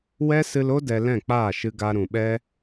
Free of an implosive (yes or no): no